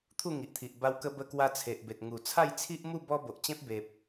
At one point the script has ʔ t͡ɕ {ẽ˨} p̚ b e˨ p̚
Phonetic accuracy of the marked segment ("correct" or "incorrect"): incorrect